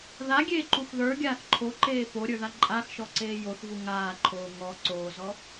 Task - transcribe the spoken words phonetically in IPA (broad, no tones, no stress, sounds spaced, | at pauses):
ð a ɡʲ eː ǃ u x ð ə˞ ɡʲ aː θ ǃʰ o ǃ eː p o ɾʲ ə˞ ð a ǃʼ a x ʃ ɔ ǀ eː j o θ v u ŋ aː ǃʰ oː ŋ ɔ ǀ oː z ɔ